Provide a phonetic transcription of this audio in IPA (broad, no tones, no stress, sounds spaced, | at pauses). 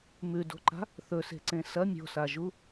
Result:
m ʉ d o̤ ǃ a̤ | θ ɵ s e̤ ǀ ẽ s ɐ mʲ o̤ s a ʒ u